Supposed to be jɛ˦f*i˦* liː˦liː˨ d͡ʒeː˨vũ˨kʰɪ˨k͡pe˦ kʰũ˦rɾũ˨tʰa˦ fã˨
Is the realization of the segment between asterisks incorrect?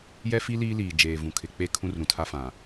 no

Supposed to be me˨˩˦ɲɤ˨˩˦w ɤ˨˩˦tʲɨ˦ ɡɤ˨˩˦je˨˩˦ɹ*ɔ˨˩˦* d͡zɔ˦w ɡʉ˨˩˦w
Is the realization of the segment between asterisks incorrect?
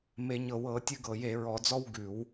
no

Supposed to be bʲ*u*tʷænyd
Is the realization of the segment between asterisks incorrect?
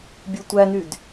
no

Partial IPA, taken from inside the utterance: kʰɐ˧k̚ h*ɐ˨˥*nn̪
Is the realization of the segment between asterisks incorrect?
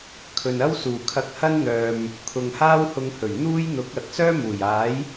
yes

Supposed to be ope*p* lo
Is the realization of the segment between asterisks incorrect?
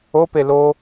yes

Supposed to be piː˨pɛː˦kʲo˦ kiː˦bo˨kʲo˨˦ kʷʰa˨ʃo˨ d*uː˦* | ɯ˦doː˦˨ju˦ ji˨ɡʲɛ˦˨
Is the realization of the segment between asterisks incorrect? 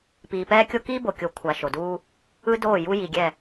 no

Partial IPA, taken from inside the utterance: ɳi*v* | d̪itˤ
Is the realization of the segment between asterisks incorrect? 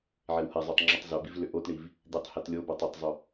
no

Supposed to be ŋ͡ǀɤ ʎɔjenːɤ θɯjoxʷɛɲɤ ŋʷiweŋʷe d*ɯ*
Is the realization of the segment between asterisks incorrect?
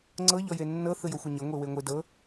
yes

